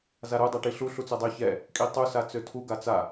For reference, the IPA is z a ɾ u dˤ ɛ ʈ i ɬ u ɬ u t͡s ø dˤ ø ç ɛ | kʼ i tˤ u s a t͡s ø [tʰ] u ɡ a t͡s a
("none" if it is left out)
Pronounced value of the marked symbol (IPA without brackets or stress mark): tʰ